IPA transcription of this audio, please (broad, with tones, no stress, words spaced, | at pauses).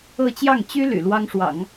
ɤ˥˧ t͡ɕjɑ˥˩ŋ t͡ɕy˥ ly̰˨˩lwɑ˥ŋʂwɑ̰˨˩˦ŋ